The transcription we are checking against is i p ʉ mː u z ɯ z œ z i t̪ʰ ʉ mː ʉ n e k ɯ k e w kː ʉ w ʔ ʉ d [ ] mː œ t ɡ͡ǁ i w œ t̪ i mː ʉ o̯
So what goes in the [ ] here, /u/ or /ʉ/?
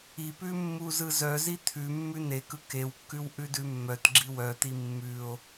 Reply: ʉ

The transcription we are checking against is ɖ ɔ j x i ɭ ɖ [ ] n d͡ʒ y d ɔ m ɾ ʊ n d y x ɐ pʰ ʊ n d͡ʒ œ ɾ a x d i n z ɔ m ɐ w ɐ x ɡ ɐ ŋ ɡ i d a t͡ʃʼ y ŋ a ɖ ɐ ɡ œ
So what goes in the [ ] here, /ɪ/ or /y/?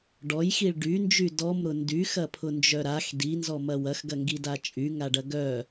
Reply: y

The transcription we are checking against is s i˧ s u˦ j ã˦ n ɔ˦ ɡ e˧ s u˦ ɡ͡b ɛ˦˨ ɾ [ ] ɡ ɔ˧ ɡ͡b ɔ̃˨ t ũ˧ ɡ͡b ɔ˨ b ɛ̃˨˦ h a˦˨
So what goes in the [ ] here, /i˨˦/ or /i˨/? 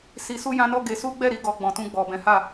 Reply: i˨˦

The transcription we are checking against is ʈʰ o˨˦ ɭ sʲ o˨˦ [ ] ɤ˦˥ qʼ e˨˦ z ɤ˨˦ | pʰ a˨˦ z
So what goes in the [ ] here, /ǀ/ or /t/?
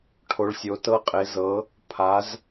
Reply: t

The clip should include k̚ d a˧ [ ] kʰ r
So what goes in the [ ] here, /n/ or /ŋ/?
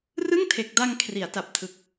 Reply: ŋ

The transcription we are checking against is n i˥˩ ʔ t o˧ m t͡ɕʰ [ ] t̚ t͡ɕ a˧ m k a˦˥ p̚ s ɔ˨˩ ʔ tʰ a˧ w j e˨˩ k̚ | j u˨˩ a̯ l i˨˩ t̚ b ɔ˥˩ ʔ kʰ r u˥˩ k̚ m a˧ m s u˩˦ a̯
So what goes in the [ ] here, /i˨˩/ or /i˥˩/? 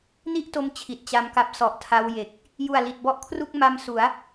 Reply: i˨˩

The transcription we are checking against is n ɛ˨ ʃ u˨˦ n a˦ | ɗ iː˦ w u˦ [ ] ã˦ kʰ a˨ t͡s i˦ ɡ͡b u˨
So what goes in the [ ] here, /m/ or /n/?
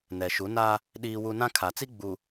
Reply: n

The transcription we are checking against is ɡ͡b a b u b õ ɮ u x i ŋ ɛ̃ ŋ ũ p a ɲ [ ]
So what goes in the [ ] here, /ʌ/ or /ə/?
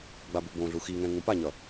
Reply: ʌ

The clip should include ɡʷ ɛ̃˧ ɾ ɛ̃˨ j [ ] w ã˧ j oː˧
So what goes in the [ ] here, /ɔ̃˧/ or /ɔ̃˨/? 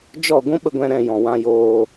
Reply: ɔ̃˨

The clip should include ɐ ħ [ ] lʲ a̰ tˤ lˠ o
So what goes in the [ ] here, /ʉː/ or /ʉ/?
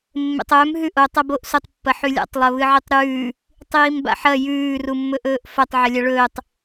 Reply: ʉ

